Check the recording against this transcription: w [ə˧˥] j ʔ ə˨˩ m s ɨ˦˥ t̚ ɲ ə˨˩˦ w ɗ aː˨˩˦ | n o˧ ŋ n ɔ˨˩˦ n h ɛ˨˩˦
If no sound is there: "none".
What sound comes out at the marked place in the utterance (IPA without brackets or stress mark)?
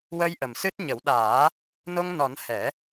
ə˧